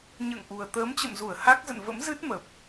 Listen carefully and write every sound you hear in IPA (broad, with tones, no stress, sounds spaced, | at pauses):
ɲ ə̰ː˧˨ ŋ ʔ u˨˩ ə̯ t̪ əː˨˦ m t͡ɕ ə̰˧˨ m z u˧˩ ə̯ h a˦˥ k̚ z ə̰˧˨ n v ə̰˧˥ m z ɨ˦˥ t̚ m ə˨˩ p̚